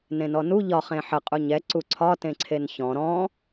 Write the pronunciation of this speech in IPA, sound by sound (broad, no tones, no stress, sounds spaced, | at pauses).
n ẽ n ɔ n u ʎ ɒ χ ẽ ħ ə qʼ u ɲ ɛ ǀ u ǀʰ ɒ t ẽ ǀʰ e n ç ɔ̃ ɾ ɔ̃